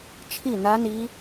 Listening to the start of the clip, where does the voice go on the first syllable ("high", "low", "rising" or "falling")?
falling